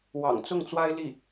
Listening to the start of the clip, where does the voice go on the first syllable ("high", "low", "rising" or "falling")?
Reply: low